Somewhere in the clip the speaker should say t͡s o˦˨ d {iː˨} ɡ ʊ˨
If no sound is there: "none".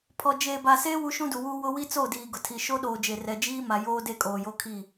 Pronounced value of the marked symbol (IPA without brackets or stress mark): iː˨